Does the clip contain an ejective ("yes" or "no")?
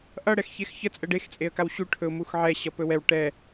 yes